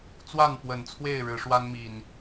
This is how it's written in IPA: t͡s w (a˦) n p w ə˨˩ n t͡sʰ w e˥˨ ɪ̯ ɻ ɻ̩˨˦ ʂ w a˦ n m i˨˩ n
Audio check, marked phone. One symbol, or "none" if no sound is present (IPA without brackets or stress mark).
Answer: a˥˨